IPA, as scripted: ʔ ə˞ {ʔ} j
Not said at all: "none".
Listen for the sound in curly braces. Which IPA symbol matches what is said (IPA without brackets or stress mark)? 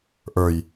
none